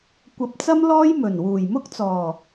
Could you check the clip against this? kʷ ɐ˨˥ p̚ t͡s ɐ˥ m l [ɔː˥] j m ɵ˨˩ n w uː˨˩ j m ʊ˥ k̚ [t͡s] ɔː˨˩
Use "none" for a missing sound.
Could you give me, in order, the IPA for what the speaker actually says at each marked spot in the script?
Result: ɔː˥, t͡s

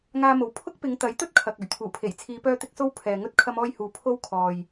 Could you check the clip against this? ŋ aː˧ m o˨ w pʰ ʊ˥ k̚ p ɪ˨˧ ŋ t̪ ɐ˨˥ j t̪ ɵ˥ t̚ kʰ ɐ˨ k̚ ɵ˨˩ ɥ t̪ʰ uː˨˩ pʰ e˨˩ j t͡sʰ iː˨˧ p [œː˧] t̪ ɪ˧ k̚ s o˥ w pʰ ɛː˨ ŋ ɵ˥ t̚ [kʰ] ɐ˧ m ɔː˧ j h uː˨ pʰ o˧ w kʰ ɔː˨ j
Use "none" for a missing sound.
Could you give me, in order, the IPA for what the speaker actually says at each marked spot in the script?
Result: œː˧, kʰ

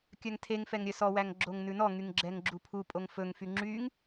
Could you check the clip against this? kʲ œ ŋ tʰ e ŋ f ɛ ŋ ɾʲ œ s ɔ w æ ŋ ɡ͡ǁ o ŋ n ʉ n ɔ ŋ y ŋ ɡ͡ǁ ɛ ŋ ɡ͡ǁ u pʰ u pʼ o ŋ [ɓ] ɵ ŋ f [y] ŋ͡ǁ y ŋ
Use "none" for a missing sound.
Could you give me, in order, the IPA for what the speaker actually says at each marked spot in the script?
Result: f, y

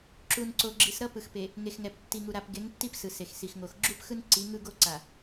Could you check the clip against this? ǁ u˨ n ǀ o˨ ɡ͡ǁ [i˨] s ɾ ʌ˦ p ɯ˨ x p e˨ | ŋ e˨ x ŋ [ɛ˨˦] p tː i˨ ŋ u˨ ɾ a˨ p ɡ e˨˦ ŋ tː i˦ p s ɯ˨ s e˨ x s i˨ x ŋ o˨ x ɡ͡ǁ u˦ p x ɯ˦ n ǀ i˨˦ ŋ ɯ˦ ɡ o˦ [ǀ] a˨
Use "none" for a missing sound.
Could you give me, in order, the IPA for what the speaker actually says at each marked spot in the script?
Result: i˨, ɛ˨, ǀ

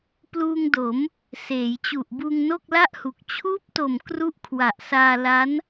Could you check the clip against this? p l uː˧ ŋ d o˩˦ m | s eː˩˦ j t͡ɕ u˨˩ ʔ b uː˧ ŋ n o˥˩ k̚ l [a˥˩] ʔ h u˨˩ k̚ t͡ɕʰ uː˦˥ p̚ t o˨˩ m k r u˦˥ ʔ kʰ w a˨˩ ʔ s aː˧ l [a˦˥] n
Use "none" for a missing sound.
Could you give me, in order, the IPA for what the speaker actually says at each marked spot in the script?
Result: a˥˩, a˦˥

